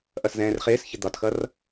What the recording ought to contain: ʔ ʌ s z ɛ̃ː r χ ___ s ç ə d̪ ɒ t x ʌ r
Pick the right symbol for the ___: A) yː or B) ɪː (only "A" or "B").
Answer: B